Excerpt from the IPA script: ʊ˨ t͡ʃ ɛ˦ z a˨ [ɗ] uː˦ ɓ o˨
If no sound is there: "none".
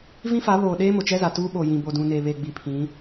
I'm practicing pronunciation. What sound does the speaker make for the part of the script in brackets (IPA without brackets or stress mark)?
t